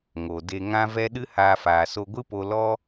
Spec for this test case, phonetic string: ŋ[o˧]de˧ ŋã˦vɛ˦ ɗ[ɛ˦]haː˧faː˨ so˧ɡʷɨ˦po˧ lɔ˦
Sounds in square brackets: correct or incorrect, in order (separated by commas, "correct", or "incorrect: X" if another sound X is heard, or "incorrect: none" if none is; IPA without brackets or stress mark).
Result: incorrect: o˨, incorrect: ɨ˦